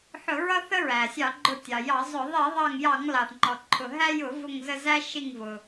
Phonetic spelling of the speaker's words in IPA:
ħ ʊ˧˩˧ ɹ ʌ˦ θ ə˦ ɹ æ˩ sʲ ɑ˧˩˧ ɡ͡ǃ ʊ˧˩ tʲ ɑ˩ j ɑ˧˩˧ zˤ ʊ˧˩˧ ðˤ i˧˩˧ ðˤ ɑ˧˩ ŋ j ɑ˧˩˧ ŋ l ɑ˩ θ ŋ͡ǃ ɔ˩ ǃʰ ʊ˩ ɦ æ˦ j ʊ˧˩˧ v ʊ˧˩ ŋ z ə˧˩ z æ˦ ʃ i˧˩ ŋ v ʊ˩

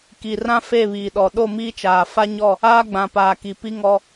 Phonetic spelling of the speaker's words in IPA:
k i˨ r ã˦ f e˦˨ β iː˨ ɗ ɔ˨ ɗ o˦˨ m iː˦ t͡ʃ aː˨ f a˦ ɲ ɔ˦˨ | aː˦ ɡ͡b ã˨ p aː˨ k i˨ p i˦ ŋ ɔ˦

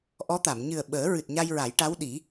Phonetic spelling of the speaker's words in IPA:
ʔ ɔ˧˥ t̪ a˨˩˨ m ɲ ɨ˨˩ ə̯ ɓ əː˨˩˦ ɹ ɨ˨˩ t̚ ɲ a˧ j ɹ a˨˩˦ j ʈ a˧˥ w ɗ i˨˩˦

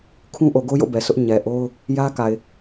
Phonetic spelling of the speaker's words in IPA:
kʰ ũ˦ ʔ o˨ ɡ o˦ j o̰˦˨ b ɛ˨ s ʊ˦ ʔ ɲ ɛ˨ ʔ o˦ ʊ̯ | j ä˦ k a˨ ɪ̯

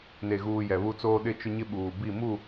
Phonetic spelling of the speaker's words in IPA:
n e˨ ɣ uː˨ j ɛ˨ β u˦ t͡s oː˦ ɗ ɪ˦ t͡ʃ ʊ˦ ɲ ɪ˦ ɓ uː˨ b i˦˨ m u˦˨

